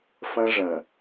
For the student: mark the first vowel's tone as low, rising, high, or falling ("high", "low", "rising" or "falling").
high